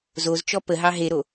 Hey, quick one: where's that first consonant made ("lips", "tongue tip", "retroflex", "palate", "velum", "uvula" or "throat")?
tongue tip